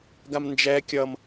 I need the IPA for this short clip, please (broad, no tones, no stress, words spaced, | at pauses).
ɡamnd͡ʒɛ kʲʌm